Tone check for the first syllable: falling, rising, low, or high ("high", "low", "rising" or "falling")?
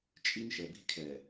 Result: high